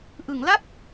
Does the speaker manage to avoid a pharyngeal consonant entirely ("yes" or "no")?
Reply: yes